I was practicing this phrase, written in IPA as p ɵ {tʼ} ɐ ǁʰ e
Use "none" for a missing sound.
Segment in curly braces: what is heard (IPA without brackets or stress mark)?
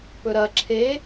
ɾ